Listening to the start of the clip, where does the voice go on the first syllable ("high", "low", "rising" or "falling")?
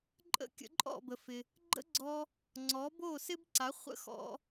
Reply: falling